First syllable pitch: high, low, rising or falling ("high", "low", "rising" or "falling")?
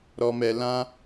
high